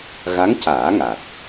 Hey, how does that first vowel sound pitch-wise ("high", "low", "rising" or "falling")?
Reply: rising